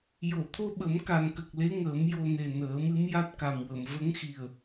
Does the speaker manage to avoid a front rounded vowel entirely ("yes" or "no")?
yes